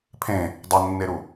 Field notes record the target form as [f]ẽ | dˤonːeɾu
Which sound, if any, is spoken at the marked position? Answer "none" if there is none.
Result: pʰ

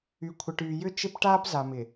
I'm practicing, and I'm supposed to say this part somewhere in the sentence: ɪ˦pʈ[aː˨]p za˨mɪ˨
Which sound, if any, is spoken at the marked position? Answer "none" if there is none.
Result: aː˦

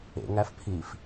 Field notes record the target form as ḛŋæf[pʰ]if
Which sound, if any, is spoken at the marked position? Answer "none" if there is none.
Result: pʰ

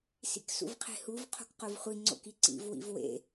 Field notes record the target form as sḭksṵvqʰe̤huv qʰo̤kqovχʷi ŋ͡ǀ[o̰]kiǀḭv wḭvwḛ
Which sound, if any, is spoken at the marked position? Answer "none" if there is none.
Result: o̰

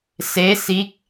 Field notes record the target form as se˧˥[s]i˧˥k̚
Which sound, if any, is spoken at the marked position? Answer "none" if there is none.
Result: s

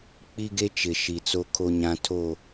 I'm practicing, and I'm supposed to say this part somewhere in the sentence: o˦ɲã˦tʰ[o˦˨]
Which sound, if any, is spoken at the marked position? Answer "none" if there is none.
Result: o˦˨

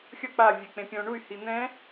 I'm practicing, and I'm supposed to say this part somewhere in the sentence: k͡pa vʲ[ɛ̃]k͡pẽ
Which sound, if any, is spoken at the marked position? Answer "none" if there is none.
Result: ɛ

